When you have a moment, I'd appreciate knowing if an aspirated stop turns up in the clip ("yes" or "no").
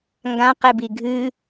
no